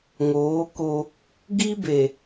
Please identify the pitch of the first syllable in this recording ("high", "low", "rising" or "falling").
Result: rising